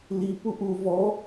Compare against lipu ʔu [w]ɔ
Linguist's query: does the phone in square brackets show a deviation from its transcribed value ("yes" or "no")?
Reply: yes